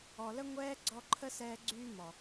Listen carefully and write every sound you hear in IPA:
ɔ˨ l ə˦ ŋʷ ɛː˦ ɡ͡ǀ ɔ˧ ǃʰ ə˦ s ɛː˧ ɡ͡ǀ yː˦ m ɔ˨

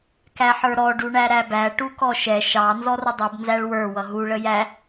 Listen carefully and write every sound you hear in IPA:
k æ ħ ə˞ ɾ ɔ ɖ u ɳ æ ɾ æ b æ ʈ u k ɔ ʃ ɛ ʃ ɑ n z ɔ r ə dˤ u b n z æ ɭ w ə˞ w ʌ ɦ u ɭ ə j æ

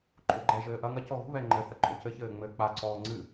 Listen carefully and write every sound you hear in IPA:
ǃʼ o ɡ͡ǃ ɛ ʒ ɘː ʔ ɐ ŋ ɐ c ɔ ɣ ṳ β ɛ ŋ͡ǃ ɘ θ ɐ ǃʼ o c ɘ ç ɘː ŋ͡m ɘː k͡p a ǀ ɔː ŋ͡ǀ ɨ

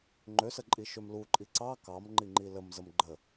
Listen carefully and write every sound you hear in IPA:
ŋ͡ǃ ø s ə ǃʼ i ʃ ø m l u ǃʼ i ǀ ɑ k ɑ m ŋ͡ǃ i ŋ͡ǃ i l ə m z ə m ɡ͡ǃ ə

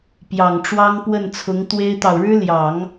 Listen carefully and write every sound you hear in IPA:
p j ɑ˨˩ ŋ ʈ͡ʂ w ɑ˥ ŋ p w ə˥˩ n t͡sʰ ʊ˧˥ ŋ t̪ w e˥ ɪ̯ t̪ ɑ˨ ʊ̯ ɻ ɻ̩˥ l j ɑ˨˩˦ ŋ

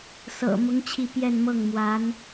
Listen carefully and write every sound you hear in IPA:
s ɤ̰˨˩ m ʊ˧˥ ŋ t͡ɕʰ i˥˧ p j ɛ˥˧ n m ɤ˥˩ ŋ m w a˧˥ n

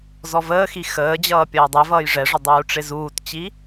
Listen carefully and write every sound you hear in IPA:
z ɔ v əː x i x əː d͡ʑ ʌː pʲ ʌː dˤ ɛ v ʌː j ʐ ɛ ʐ ə dˤ uː ʈ͡ʂ ɪ z uː t t͡ɕ i

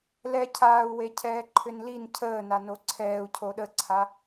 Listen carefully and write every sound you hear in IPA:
l ɛ cʰ aː u̯ w e cʰ ɛː ǃʰ ʏ n l i n cʰ əː n a n o ǀʰ ɛː u̯ cʰ o ɗ ə ǀʰ a

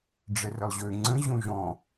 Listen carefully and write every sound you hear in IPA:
ɖ͡ʐ ɛ r ə lˠ ʑ ø ŋ͡ǀ ə̃ ʑ õ ʒ ɔ̃

